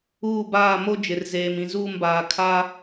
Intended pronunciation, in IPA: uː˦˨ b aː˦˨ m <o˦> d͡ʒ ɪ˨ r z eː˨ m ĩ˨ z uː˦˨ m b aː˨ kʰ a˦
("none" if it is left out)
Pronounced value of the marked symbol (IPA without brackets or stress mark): o˦